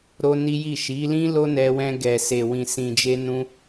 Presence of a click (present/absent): absent